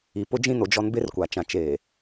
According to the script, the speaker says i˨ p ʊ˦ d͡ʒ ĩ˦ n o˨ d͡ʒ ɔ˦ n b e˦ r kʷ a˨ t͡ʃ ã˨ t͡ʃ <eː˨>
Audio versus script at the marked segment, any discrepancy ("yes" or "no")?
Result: no